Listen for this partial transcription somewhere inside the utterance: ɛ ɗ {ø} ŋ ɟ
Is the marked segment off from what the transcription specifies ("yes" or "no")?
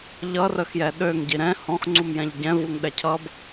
no